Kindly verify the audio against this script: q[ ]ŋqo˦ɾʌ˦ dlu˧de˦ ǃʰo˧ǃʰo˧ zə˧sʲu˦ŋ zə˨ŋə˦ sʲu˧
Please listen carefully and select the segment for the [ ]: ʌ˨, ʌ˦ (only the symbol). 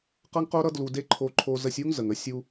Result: ʌ˦